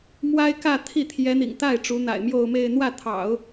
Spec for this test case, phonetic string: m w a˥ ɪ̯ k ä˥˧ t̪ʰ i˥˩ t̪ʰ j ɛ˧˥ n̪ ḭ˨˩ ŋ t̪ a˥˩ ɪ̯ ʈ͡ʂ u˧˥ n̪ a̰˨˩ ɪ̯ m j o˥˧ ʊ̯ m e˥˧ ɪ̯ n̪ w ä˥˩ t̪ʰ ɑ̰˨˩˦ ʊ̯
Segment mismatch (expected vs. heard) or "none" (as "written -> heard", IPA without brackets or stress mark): none